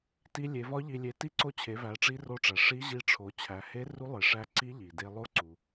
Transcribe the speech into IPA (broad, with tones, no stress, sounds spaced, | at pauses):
t i˧ lʲ e˩˧ v ɒ˧˥ ʎ i˧ lʲ e˧ t i˧˥ ǀ o˧ t͡ɕʰ e˩˧ v æ˩˧ ʈ͡ʂ i˧˥ r o˧˥ ʈ͡ʂ æ˩ ʂ i˧˥ ʑ i˧ ʈ͡ʂʰ o˩˧ t͡ɕʰ æ˩˧ h e˧˥ r u˧˥ lˠ e˩ ʂ æ˧ ǀ i˧˥ ʎ i˩ d e˧ lˠ o˥ ǀ u˩